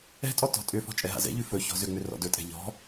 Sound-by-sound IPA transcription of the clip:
ɛ̤ tʼ ɔ t ɔ̤ tʼ ʏ f ɔ̤ t͡ʃʼ ɛ ɦ a̰ z ɛ̰ ʎ ʉ f ɵ ç ɔ̤ z ʏ ŋ͡m ʏ r ɔ̰ d ɵ tʼ ɛ̤ ʎ ɔ̤

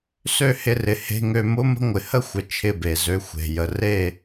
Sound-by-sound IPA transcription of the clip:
s ø˦˨ h ɪ˧ r ɪ˨ h e̤˧ ŋ ø˧ m ʊ˦ m ə̤˧ ŋʷ ɪ˨ h ə˦ xʷ ə˨ t͡ʃʰ ɪ˦˨ b e˨ z ø˧ xʷ e̤˨ j ə˨ r e˦˨

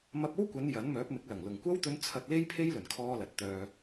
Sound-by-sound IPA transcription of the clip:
m ɐ˧ p̚ o˥ w kʷ ɐ˨˧ n j ɐ˨˥ n m œː˨˥ p̚ m ɪ˨˥ k̚ l ɐ˨˩ ŋ l ʊ˨˩ ŋ kʷ ɐ˥ w t̪ ɵ˧ n t͡sʰ ɐ˧ t̚ l e˥ j pʰ e˥ j l ɵ˨˩ n kʰ ɔː˧ l ɐ˨ t̚ t̪ œː˧

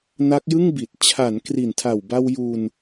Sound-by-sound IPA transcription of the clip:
n a˦˥ k̚ j ɯ˥˩ ŋ b i˨˩ t̚ t͡ɕʰ a˩˦ n k r i˨˩ n tʰ a˨˩ w b a˧ w j u˧ n

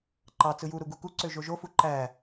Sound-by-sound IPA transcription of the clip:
ǃ ɑ t͡s ɯ j u ɾ u ɡ u k u ǀ ø ʒ o ʒ o f u ǃ æ

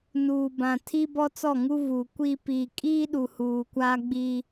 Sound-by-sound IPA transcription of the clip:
n uː˨ b ã˨ tʰ i˦ b ɔ˦ t͡s ɔ˦˨ ŋ u˦ v u˨ kʷ i˦ p i˨ kʼ iː˦ ɗ u˨ h uː˨ kʷ aː˦ ɡ͡b i˦

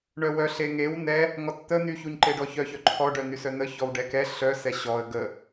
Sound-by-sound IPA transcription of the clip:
ɳ œ w œ ɬ e ŋ e w n ɛ | ŋ ɔ t t̪ ə n̪ y ç u ɲ ǃ e ɖ ɔ ç œ ç œ ǃʰ ɔ ɖ œ n̪ y s œ n̪ ə ç ɔ w ɖ ɛ k ɛ ɬ œ s ɛ ɕ ɔ ə̯ ɡ ə

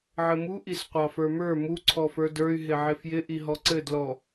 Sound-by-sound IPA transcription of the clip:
ʕ ɘ m u ʔ i s qʷ ɑ f ə˞ m ə˞ m u ǀʰ ɔ f ə˞ d ə˞ y̯ ɦ ɪ ʕ ɪ f j ɪ ʔ i ɦ ɔ ǀ ɘ d l ɔ

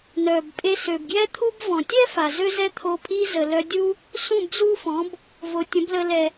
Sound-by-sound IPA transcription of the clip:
n œ˩ b pʼ e˧ s ø˩ b ɡ j ɛ˥ t̪ʰ u˥ b v ɔ̃˩ tʲ ɛ˥ f a˩ z ø˥ z ɛ˥ t̪ʰ o˧ pʼ i˥ z ə˩ l œ˧ dʲ u˥ | s ũ˥˩ b z u˥ f ɔ̃˩˥ b | v o˩ tʲ ə̃˩˥ b l ə˧ l ɛ˩

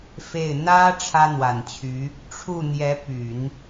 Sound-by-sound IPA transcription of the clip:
f e˥˩ ɪ̯ n̪ ä˥ ʈ͡ʂʰ ä˥ n̪ w a˨˩ n t͡ɕʰ y˧˥ | ʈ͡ʂʰ u˥˩ n̪ j ɛ˧˥ p y˨˩˦ n

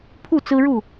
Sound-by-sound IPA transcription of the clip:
pʰ u˥˨ t͡s ɹ̩˦ ɻ u˥˨

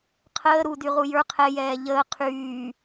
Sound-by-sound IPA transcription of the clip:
qʰ əː ɾ u d y ʁ u j ə˞ qʰ ɛ j ɛː ʎ əː qʰ yː

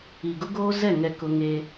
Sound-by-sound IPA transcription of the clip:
i˨ ɡ ʊ˦ ɡ oː˦ z ɛ˦˨ ŋ ɛ˦ k ʊ˦ ŋ eː˦

